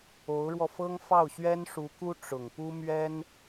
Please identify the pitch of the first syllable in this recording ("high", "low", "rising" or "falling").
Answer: rising